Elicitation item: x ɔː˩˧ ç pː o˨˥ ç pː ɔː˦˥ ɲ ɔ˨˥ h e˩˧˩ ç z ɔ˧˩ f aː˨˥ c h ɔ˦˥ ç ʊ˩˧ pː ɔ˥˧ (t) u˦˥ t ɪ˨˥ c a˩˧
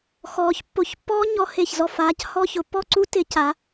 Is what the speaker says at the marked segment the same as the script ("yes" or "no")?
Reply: no